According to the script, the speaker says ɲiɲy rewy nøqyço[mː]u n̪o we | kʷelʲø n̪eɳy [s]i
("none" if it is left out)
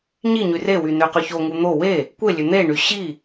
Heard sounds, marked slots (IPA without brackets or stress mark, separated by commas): ŋ, ɕ